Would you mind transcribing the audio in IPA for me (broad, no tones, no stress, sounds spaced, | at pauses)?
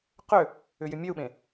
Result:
q ʏ | ʏ j ʏ mʲ ø u̯ ɓ ẽ